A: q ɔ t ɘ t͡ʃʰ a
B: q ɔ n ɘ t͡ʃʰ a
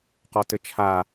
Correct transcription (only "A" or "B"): A